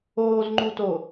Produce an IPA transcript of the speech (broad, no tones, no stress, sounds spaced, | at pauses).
oː z ŋ͡ǃ u t o